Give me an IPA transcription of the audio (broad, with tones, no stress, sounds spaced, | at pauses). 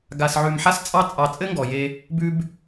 ɡ a˨ s ʕ ʉ˨ m ħ a˥ s t͡sʼ ɑ˥ t͡sʼ ɑ˨ t͡sʼ ɘ˥ ŋ ɡ ɔ˩ j e˨ | b ʉ˦ b